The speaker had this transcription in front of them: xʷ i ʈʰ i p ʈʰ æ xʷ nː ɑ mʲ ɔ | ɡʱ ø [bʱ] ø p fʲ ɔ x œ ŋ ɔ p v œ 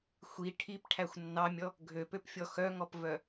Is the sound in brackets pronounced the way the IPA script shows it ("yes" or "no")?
no